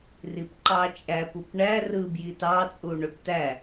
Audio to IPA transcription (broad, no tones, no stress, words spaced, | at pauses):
ripǃɑt͡ʃʼæp upɳæ rɯ bjitɑ t͡sʼuɳøptæ